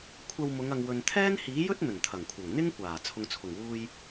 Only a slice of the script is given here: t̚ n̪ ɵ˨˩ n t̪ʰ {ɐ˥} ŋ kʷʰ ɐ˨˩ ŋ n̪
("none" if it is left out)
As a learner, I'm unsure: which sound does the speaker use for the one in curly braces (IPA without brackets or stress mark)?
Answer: ɐ˨˩